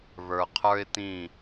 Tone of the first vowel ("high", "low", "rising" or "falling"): low